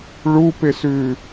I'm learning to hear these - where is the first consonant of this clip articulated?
retroflex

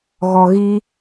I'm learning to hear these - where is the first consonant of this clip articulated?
velum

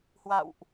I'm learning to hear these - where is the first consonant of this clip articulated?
throat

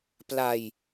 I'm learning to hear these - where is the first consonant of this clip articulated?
lips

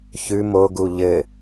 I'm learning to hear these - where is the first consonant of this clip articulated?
palate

